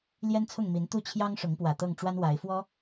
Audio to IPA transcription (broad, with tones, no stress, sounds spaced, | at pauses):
l j ɛ˦ n t͡sʰ ʊ˥˨ ŋ m i˨˦ n t̪ u˥˨ t͡ɕʰ j ɑ˦ ŋ ʂ ʊ˨˦ ŋ p w ä˨˩ t̪ ɤ˥˨ ŋ ʈ͡ʂ w a˦ n w a˨˦ ɪ̯ f w ɔ˦